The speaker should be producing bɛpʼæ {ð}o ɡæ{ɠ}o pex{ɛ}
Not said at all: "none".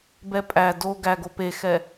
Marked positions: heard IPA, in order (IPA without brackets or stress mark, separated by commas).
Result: d, ɡ, ɛ